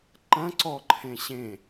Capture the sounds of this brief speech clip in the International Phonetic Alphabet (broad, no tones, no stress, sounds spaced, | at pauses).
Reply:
ǃ ɐ̃ ǀ ɔ ǃʰ ẽ ɕ ẽ